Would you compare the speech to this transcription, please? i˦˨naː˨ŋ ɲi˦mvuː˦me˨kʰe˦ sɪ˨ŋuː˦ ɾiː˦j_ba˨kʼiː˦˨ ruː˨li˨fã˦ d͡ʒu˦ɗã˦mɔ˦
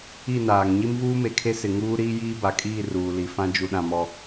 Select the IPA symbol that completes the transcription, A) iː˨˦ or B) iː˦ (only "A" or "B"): B